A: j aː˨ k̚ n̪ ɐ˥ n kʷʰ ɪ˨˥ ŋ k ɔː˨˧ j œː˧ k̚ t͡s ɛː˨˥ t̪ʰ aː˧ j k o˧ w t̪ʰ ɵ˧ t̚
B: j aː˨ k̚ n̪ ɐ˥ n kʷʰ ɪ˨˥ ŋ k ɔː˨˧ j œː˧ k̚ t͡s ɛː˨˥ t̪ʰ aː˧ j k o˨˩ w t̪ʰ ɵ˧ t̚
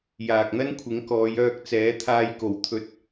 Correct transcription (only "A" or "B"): B